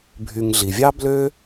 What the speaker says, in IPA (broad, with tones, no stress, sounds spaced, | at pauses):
bʱ y˨ ŋ ɮ i˩ vʲ ɑ˥ b l ø˥